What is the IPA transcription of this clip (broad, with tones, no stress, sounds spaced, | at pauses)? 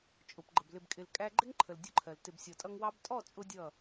t͡ʃʼ ʊ˨ p ɡ͡ǃ ə˨ b l ɪ˨ b kʼ ɪ˨ l kʼ æ˧ ɡ͡ǃ ɪ˦ ŋ ǃʰ ə˨ l dʲ ʊ˦ ǃʰ ɜ˨ l t ɪ˨ b sʲ ɔ˨ tʼ ʌ˧ ŋ w ɑ˧ b tʼ ɔ˦˨ t͡sʼ ʊ˦ dʲ ʌ˦˨